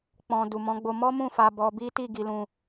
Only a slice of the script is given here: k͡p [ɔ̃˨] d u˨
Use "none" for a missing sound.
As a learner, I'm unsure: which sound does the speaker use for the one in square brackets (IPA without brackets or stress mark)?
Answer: ɔ̃˨